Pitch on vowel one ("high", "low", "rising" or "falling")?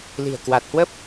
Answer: low